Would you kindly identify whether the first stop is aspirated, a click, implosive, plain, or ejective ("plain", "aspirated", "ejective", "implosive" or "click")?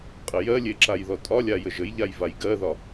ejective